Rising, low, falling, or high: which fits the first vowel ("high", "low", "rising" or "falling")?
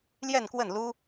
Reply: falling